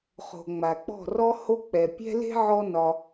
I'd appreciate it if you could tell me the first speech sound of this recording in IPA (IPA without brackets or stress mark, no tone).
χ